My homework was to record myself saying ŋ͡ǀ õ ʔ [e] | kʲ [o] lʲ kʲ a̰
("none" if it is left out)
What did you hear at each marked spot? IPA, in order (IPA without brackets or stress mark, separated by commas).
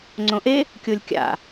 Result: e, o